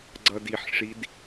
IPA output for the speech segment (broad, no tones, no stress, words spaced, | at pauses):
ɡ͡ǀʌdiħʂid